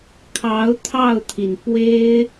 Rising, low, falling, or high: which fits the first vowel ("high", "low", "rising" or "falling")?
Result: rising